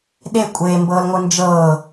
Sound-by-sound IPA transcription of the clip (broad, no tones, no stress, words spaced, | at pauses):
ɗe kʷʼeːmbɤːlŋʷɯ nd͡ʒɤː